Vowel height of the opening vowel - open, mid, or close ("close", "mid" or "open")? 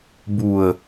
close